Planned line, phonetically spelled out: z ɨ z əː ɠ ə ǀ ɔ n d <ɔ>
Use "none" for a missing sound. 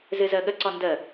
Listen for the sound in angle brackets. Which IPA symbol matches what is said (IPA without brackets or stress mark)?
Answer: ə